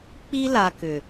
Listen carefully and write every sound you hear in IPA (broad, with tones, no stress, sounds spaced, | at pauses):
k͡p i˦ l a˨ k ʏ˨